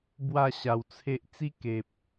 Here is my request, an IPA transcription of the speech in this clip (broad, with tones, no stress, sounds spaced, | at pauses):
b w a˥˧ ɕ a˨˩ w t͡sʰ e˦ ʔ t͡s i˦ k e˨ p̚